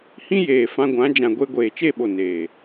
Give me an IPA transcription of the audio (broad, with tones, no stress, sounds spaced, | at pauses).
h ĩ˦ j eː˨ f ã˧ ɡʷ ã˨˦ d͡ʒ ã˨ ɡʷ e˧ ɡʷ eː˨ t͡ʃ e˦˨ ɓ o˨ n eː˨